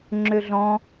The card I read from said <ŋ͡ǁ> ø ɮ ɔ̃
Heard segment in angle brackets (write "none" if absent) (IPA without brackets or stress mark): ŋ͡ǁ